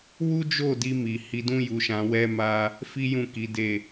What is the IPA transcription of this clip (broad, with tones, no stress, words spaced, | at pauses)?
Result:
wu˦d͡ʒo˦˨di˧ mi˨ hi˧dũ˦ju˧ʃã˧ wɛ˦ma˦ | fi˦jũ˦˨ki˨˦de˦˨